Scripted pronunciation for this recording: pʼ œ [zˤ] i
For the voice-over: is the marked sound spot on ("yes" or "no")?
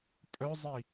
yes